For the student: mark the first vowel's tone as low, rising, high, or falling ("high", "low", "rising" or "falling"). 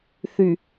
low